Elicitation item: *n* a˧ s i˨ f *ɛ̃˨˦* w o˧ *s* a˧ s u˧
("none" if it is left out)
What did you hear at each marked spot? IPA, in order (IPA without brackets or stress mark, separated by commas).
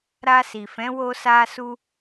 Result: ɾ, ɛ̃˨˦, s